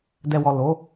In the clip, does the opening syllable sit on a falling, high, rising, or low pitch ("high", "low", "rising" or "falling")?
low